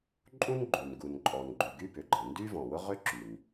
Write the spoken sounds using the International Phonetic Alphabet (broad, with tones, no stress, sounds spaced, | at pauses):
ǃʼ ũ˥ n ɡ͡ǃ ʉ˩ n ɡ u˩ n ǃʼ ɔ˩ n ɡ͡ǃ ʉ˩ ɡ y˥ b ʏ˩ ɡ͡ǃ ə˩ n d y˥ v ɔ̃˩ w ʊ˥ ʁ ʏ˥ ǁ y˩ n